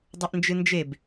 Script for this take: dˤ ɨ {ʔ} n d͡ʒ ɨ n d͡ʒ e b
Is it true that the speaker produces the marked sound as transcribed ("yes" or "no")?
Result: yes